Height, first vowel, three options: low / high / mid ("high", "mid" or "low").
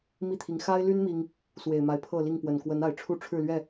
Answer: high